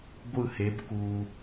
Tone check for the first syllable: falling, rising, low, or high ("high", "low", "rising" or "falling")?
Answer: falling